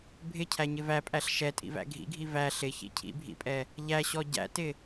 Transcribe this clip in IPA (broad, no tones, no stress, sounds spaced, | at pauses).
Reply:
bʱ ɪ cʰ æ ɲ ɪ v æ pʼ æ ɬ ʃ ɛ tʼ ḭ v æ̰ ɡʱ ḭ ɡʱ i v æ ɬ ɪ ç ḭ cʰ ḭ bʱ ḭ pʼ ɛ | ʎ æ ɕ ɔ ɟ æ̰ t ɪ